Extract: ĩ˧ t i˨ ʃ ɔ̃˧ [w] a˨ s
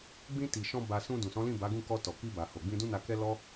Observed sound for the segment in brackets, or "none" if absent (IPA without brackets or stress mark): b